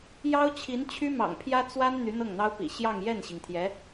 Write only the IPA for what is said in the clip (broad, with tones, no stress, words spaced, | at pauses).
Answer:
jɑ˥ʊ̯t͡ɕʰi˧˥n t͡ɕʰy˥mɑ̰˨˩ŋpʰjä˥ t͡swa˥n n̪y˧˥n̪ɤ˥˩ŋn̪ɑ˥ʊ̯pḭ˨˩ ɕjɑ˥˧ŋjɛ˥˩nɕi˩ŋt̪ʰjɛ˧˥